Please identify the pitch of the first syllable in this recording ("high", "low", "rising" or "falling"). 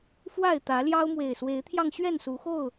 falling